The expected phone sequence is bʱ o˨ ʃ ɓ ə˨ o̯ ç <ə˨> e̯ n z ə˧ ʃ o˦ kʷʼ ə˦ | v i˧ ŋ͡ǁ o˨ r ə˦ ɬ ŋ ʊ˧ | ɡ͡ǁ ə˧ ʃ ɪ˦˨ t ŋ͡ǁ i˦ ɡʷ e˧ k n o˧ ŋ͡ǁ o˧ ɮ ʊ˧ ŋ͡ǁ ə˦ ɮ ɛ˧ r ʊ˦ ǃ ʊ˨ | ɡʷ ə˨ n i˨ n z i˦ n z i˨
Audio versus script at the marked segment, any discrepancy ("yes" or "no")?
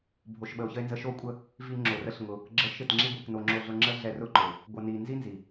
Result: yes